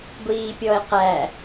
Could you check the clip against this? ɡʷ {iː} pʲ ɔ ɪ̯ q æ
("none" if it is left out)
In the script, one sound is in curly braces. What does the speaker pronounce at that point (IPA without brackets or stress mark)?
iː